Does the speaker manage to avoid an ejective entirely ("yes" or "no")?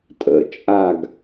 no